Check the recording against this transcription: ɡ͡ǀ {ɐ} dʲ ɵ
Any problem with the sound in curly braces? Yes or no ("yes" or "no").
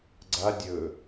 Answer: yes